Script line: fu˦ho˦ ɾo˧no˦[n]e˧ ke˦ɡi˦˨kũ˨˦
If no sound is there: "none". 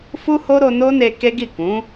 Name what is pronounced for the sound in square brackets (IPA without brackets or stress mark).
n